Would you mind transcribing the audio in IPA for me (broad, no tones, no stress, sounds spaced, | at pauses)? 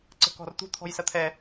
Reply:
ǀ ə̤ k ɔ̤ r t̪ ṳ t̪ʰ ɔ̤ j s ɐ t̪ʰ ɛ